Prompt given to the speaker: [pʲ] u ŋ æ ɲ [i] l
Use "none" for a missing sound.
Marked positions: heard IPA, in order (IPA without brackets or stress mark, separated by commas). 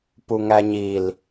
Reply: p, i